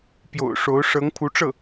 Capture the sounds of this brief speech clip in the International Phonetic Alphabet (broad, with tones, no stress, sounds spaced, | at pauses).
p j o̰˨˩ ʊ̯ ʂ o˧˥ ʊ̯ ʂ ɤ˧˥ ŋ pʰ u˧˥ ʈ͡ʂ ɤ˥˩